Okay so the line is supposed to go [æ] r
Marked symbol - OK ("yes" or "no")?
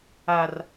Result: no